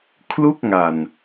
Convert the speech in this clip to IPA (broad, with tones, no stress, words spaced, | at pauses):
kʰlu˥˩k̚ŋa˨˩n